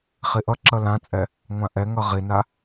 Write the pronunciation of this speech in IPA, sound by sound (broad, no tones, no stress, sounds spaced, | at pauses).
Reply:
χ i ʔ ʌ ǁ ʌ l ã t͡sʼ ɛ | ŋʷ ã ʔ ɛ ŋ ʌ ʁ i n a